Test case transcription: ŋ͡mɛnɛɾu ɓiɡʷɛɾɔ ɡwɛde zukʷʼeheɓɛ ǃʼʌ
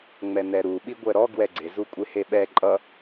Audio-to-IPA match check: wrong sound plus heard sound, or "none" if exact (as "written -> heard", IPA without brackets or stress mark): d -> ɡ͡ǀ